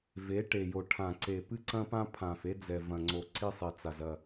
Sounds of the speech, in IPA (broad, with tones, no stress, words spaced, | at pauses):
ve˨˦ ʈe˨jo˨ʈʰã˨ ǀe˨ pɨ˦ǀɐ̃˦pã˦pʰã˨f e˦d͡zɛ˨ vɐ̃˨ŋ͡ǀo˨ǀi˦ sˤi˨t͡sa˨zɐ˦˨